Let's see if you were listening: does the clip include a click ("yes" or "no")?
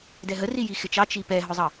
no